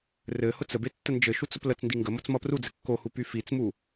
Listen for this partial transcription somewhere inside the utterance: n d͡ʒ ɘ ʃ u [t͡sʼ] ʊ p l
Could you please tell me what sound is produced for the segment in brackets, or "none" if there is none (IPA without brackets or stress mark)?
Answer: t͡s